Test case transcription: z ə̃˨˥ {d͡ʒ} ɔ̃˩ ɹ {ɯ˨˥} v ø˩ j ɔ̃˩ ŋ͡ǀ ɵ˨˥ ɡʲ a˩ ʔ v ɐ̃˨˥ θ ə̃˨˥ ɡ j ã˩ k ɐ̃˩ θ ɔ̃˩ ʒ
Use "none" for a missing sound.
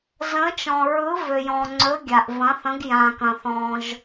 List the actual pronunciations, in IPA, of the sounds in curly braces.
t͡ʃ, ɯ˨˥

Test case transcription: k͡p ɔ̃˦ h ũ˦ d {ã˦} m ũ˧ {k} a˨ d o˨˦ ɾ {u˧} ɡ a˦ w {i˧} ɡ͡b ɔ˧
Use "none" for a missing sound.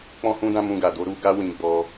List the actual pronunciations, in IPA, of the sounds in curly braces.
ã˦, ɡ, u˧, ĩ˧

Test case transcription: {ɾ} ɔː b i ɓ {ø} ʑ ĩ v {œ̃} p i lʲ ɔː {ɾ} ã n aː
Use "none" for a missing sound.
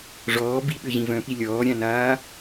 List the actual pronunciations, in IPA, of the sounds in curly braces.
ʐ, ø, œ̃, ɾʲ

